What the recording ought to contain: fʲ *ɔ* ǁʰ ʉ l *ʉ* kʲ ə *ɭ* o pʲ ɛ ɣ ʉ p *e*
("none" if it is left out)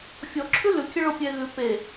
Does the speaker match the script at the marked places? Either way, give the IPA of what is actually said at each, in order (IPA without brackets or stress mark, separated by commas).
ɔ, ʉ, ɭ, e